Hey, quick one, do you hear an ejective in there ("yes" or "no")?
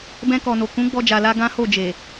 no